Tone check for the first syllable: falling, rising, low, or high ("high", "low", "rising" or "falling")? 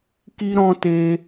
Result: high